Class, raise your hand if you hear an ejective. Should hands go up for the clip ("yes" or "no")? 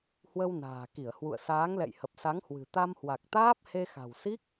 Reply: no